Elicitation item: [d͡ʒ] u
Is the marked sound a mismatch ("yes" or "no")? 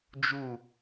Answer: no